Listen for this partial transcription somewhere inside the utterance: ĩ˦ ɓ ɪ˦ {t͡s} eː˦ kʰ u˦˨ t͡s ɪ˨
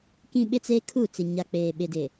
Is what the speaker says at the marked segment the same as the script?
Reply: yes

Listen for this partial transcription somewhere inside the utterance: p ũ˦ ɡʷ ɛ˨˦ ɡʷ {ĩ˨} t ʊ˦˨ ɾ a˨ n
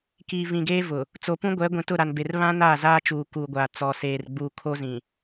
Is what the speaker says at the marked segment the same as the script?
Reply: yes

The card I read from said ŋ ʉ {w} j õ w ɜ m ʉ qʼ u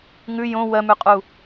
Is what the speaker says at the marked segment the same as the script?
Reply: no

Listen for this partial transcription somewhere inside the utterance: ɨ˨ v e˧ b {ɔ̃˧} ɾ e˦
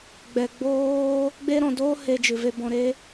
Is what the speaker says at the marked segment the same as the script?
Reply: yes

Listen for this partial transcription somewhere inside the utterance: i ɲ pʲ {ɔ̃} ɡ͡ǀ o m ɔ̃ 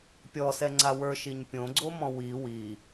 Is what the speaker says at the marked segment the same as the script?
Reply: no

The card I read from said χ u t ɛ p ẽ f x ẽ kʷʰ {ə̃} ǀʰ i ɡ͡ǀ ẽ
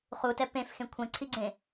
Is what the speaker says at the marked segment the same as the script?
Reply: no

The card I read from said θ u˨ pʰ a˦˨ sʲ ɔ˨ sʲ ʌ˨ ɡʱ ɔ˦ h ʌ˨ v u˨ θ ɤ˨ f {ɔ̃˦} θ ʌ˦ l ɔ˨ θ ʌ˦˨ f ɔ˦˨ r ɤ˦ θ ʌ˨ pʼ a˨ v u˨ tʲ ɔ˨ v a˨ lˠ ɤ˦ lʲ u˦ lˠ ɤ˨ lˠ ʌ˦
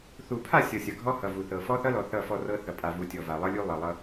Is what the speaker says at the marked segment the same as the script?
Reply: no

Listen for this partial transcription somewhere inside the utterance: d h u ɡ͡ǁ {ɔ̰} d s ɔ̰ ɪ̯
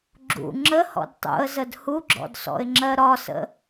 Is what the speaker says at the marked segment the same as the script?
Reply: yes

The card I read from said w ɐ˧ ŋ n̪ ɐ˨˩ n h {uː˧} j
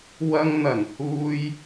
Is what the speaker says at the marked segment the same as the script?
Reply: yes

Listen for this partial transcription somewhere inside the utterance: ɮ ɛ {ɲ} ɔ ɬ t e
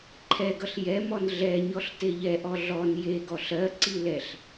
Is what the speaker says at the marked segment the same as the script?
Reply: yes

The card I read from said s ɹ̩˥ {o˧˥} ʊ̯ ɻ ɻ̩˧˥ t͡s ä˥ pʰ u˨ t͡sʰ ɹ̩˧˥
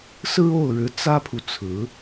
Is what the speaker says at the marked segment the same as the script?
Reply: no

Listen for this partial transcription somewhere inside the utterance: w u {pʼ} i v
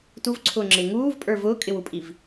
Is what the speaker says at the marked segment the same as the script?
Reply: yes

